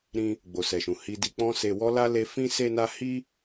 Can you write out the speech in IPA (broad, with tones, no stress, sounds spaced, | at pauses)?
ɾ ĩ˧ | ɡ͡b o˨ s ɛ˨ ʃ ũ˨ h i˧ d i˧ k͡p ɔ̃˦ s e˧ w ɔ˦ l a˦ l e˧ f ĩ˦ s e˦ n a˦ h i˦